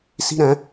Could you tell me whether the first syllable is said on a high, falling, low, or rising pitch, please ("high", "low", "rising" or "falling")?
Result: high